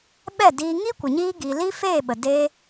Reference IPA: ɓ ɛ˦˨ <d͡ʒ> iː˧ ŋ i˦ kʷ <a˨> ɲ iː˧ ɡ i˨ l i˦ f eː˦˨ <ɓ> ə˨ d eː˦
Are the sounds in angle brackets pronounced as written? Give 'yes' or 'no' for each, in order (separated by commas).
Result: no, no, yes